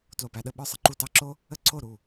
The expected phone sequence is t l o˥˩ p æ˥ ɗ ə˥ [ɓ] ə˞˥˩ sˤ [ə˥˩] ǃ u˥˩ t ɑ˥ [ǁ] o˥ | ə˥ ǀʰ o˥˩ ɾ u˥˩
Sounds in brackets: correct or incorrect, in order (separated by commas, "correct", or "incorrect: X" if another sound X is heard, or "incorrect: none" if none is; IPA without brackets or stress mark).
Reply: correct, correct, correct